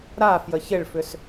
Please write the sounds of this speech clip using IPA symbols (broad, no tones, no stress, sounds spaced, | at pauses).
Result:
ɾ a f j ə ç ɪ ɭ f ʏ s